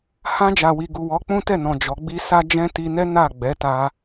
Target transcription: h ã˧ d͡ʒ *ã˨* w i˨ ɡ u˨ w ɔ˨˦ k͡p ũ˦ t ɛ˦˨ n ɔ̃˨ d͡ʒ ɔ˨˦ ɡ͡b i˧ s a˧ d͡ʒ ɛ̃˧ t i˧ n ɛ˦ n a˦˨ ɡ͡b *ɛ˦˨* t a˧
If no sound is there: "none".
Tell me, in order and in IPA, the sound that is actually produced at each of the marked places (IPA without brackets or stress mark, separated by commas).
a˨, ɛ˨˦